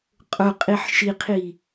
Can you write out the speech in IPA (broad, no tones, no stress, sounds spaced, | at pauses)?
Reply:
qʼ ʊ qʼ i ħ ʃ i qʰ i